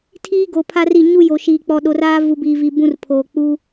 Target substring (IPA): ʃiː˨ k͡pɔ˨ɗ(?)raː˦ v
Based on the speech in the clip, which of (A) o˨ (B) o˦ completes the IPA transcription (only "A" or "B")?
A